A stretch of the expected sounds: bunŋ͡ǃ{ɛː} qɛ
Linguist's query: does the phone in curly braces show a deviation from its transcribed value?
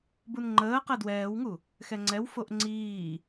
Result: yes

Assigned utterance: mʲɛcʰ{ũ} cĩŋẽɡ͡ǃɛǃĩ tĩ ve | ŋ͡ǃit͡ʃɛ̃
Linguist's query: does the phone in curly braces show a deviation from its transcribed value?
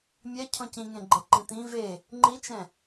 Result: yes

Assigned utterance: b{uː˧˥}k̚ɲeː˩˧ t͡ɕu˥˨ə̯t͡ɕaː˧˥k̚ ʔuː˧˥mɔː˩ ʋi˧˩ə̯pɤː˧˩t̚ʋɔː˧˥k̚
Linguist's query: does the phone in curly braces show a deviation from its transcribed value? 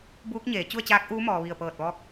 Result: no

